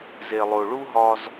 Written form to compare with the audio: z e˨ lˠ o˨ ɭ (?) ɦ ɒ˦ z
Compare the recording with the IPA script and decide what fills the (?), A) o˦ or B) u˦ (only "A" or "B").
B